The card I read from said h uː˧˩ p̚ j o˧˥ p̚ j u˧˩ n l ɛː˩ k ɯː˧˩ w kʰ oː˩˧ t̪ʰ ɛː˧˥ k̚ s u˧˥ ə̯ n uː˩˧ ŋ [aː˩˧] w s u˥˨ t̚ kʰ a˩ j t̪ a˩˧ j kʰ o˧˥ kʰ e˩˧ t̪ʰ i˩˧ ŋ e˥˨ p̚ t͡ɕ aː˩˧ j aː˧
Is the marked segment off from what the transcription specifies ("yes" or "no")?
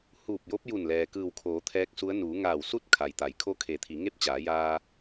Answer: yes